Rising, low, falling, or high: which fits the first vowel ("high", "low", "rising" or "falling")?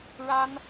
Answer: high